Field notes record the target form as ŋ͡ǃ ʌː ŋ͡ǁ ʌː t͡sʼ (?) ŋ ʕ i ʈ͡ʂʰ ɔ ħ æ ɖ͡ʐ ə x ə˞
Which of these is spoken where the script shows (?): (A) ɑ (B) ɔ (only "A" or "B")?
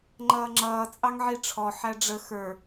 A